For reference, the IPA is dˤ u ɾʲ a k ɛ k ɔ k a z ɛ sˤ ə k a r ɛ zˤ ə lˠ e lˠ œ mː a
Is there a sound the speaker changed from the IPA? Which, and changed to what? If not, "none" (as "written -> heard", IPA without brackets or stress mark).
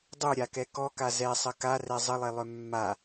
none